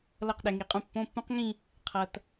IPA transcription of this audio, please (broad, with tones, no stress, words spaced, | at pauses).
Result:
lʌ˥˩qɗɛ˨ŋi˨qʼũ˥˩ pːõ˧˥˧pːũ˦˥qŋĩ˥˧ | qʰʌ˨t